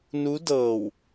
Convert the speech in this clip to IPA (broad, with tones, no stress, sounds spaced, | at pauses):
n u˧˥ d ɤː˧˩ w